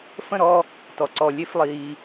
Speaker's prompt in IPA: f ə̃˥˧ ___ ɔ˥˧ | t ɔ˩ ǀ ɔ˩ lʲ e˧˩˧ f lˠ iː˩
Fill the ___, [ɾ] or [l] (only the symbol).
ɾ